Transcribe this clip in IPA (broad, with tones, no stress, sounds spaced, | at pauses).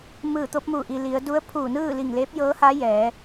m ɯː˧˩ t̪ o˧˥ p̚ m u˧˩ ʔ i˩ l i˩˧ ə̯ d u˧˥ ə̯ pʰ uː˧˩ n ɯː˥˨ l i˧˩ ŋ l eː˧˥ p̚ j ɤː˧˥ h aː˧˥ j ɛː˩˧